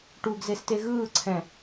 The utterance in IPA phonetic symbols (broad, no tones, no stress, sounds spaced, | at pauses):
ʈ u ɡ z e s t e ɣ ɯː ǀʰ ɛ̃